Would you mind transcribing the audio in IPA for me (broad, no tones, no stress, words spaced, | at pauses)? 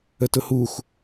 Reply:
ətʊhux